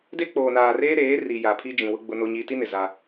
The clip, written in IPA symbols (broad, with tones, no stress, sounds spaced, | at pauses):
d e˦ k͡p oː˨ n aː˨ r eː˦ ɾ eː˨˦ r i˨ j a˨ pʰ i˦ d͡ʒ ĩ˨ w ʊ˦ ɡ͡b ʊ˦ n o˦ ɲ i˦ t i˦ n ɪ˨ z a˦